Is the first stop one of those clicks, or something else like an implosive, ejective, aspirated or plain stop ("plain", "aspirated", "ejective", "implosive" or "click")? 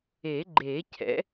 click